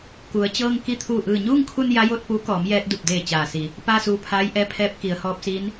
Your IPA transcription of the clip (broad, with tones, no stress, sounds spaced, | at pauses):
k u˩˧ ə̯ t͡ɕ ɤː˧ ŋ k i˧˥ t̪ʰ uː˧˩ ʔ ɯː˧˩ ɲ uː˥˨ ŋ kʰ u˧ n j a˧˥ j o˥˨ t̚ p uː˧˥ k ɔː˩˧ m j ɛː˧ t̚ d u˧˩ p̚ d eː˧˩ t͡ɕ aː˩ s i˩˧ | p aː˥˨ s uː˧ pʰ aː˧˥ j ʔ ɛː˧˥ pʰ ɛː˧˥ p̚ k i˩˧ ə̯ h ɔː˧˥ p̚ s iː˧˥ n